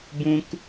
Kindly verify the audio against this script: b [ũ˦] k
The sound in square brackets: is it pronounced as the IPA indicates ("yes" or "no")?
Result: yes